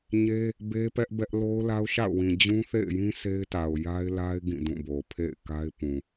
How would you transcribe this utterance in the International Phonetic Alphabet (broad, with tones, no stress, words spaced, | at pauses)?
ɲe˦ | be˦pɛ˦ʔbɛ˦ʔ lo˦ʊ̯la˦ʊ̯ʃa̰˦˨ʊ̯wĩ˨ d͡ʑũ˦θḛ˦˨ɪ̯jĩ˦ se˦ɪ̯ta˨ʊ̯ ja˦ɪ̯la˦ɪ̯ ɡĩ˦˨dũ˦˨bo˨ pʰḛ˦˨ɪ̯ka˦ɪ̯pũ˨